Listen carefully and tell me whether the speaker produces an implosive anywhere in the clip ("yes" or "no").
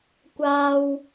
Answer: no